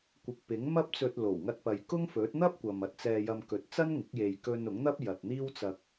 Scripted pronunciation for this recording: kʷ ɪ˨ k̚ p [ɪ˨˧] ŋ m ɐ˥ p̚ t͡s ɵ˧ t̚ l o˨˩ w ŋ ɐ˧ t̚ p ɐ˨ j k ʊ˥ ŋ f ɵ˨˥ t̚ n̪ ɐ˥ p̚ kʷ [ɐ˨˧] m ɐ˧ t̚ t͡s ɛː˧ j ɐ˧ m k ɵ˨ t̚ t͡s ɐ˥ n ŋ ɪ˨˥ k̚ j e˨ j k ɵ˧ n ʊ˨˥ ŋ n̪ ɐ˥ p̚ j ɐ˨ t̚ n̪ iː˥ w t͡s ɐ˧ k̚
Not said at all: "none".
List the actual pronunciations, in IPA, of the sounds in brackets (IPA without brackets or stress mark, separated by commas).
ɪ˨˥, ɐ˨